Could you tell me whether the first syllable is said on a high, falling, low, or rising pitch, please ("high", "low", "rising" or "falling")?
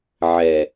low